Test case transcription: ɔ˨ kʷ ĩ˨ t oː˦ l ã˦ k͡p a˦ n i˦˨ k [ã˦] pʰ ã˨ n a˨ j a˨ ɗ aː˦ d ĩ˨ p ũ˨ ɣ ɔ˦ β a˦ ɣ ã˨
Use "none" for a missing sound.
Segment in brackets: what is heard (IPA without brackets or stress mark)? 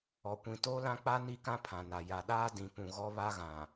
ã˦